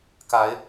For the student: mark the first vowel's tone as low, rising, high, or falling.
rising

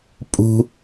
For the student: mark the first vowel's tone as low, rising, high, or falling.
high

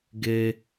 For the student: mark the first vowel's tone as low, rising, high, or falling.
high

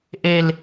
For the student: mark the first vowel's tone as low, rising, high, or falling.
high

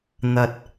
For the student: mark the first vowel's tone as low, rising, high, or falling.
low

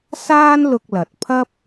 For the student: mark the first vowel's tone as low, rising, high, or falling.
high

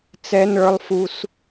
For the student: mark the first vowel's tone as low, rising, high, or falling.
high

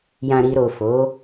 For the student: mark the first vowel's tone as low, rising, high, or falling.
low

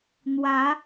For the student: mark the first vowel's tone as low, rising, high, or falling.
rising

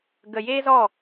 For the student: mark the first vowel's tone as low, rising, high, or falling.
low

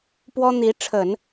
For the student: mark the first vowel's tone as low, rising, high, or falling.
high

